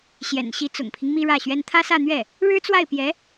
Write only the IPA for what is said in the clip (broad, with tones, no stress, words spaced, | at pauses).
ɕjɛ̰˨˩nɕi˧˥t͡sʊ̰˨˩ŋpʰi˦ŋ mi˥ɻä˥˩ɕɥɛ˥n t̪ʰä˥sä˥˧n̪ɥɛ˥˩ | ɻɻ̩˥t͡swa˥˩ɪ̯pjɛ˧˥